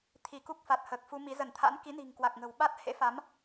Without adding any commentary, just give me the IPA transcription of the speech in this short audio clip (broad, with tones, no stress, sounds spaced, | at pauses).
t̪ʰ i˧˩ k u˦˥ k̚ f a˨˩ t̚ h əː˨˩ k̚ f u˧ m i˨˦ z ə˧˩ n t̪ʰ a̰˧˥ n k i˨˦ n i̤˨˩ ŋ k w a˨˩ k̚ ŋ ə̤˨˩ w ɓ a˦˥ t̚ h ḛ˧˥ f a˨˦ m